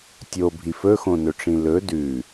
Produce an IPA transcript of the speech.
tʲ o bʱ i f ɵ x õ n ɵ ʈ͡ʂ ĩ l ɵ d ʉ

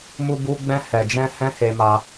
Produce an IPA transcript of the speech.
m u˧ b u˧ ɡ͡b ɛ̃˧ h ɛ˨ d͡ʒ ɛ̃˧ h ɛ̃˦ h e˧ m a˧

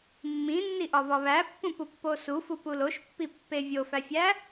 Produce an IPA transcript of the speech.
mː ĩ nː i ʔ ɒ v ɒ β æ pː ũ p u pː o s u f u p u l o ʃ pː i pː e vʲ o f æ fʲ æ

